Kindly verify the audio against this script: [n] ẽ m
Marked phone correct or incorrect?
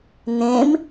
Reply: correct